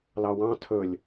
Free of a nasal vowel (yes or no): no